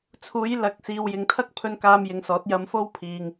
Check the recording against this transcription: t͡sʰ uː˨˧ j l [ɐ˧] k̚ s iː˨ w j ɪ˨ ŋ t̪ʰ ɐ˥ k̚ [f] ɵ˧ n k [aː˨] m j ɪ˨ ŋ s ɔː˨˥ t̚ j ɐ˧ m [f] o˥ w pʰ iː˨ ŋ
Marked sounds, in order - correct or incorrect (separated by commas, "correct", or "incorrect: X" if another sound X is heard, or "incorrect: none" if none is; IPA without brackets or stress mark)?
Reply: incorrect: ɐ˨˥, incorrect: pʰ, incorrect: aː˧, correct